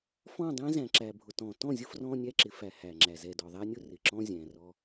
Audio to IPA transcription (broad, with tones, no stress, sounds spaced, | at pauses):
f ɔ̃˦˨ dˤ ɛ̃˦ z æ̃˨ ǁ æ˨ bʱ ʊ˨ t ɔ̃˨ t ɔ̃˦˨ zʲ ʊ˦ f r ɔ̃˦ nʲ æ˦ ǁ ɪ˨ f æ˨ h æ˨ ŋ͡ǁ æ˨ z ɛ˨ d ɔ˨ ðˤ æ˦ nʲ ʊ˦ r ɪ˨ ǁ ɔ̃˦ zʲ æ̃˨ r ɔ˦